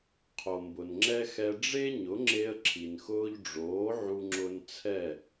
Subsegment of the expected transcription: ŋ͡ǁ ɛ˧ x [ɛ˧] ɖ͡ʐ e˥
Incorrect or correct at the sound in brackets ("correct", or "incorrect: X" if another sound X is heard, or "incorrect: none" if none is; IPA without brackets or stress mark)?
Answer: correct